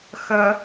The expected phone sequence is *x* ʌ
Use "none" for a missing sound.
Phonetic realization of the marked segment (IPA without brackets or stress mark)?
x